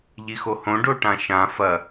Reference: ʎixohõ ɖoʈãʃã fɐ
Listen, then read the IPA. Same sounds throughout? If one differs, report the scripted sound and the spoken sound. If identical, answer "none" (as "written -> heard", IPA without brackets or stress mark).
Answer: none